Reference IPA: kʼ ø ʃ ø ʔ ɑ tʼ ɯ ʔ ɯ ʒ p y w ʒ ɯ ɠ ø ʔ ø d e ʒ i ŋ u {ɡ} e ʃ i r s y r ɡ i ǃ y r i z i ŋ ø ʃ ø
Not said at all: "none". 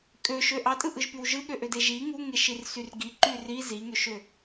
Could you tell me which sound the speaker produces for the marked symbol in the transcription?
ŋ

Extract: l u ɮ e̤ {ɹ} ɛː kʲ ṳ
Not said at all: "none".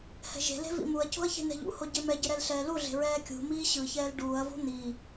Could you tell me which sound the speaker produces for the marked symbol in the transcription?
ɹ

